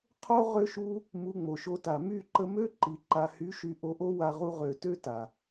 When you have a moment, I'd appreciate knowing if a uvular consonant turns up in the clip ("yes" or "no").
yes